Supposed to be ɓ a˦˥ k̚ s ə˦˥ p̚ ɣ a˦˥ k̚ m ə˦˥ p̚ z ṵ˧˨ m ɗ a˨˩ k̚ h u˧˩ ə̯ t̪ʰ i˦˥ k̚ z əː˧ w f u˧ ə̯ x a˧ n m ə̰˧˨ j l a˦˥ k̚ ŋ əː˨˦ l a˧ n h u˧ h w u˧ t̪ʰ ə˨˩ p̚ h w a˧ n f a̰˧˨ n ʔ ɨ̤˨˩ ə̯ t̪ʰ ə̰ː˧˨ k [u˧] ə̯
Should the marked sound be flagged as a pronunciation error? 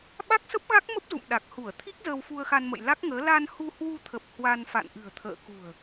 yes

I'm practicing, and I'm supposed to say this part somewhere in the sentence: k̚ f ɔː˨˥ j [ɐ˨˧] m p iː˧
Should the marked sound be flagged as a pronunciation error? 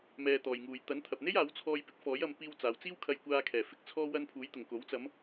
no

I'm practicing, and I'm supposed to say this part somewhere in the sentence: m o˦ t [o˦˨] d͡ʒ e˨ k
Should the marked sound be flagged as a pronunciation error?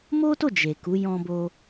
no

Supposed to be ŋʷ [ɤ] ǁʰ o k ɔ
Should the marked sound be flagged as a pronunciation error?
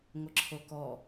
no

